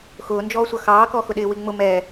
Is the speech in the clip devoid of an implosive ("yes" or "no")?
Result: no